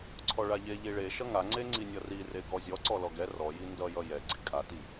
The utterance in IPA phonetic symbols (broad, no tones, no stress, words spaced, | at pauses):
ǀʰɔɭaʎe ʎiɭe ʃʌŋaŋ͡ǀe ŋ͡ǀinʲʌrire ɡɔzʲɔ ǀɔlɔɡɛ rɔji ndʌjʌ jɛɡ͡ǀi kʼati